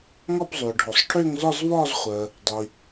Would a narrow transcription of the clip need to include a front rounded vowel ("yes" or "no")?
yes